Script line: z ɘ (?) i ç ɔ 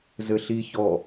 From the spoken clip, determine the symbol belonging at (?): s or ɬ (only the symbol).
ɬ